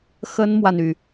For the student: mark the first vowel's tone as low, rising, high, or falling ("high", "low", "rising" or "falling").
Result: high